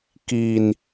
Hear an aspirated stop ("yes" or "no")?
no